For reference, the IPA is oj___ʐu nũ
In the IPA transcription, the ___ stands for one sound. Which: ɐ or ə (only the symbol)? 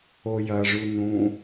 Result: ɐ